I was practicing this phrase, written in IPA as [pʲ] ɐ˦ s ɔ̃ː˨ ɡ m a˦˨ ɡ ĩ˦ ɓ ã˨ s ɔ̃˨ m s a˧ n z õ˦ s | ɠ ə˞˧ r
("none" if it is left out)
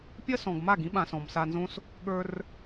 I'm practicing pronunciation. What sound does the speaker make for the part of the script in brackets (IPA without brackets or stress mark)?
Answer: pʲ